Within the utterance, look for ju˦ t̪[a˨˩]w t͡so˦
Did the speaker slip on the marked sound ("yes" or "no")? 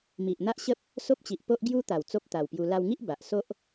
no